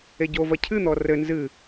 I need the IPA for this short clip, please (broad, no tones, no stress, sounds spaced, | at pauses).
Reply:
e ɟ o v ɐ cʰ ɨ n̪ ɔ r ɘ n z ɨ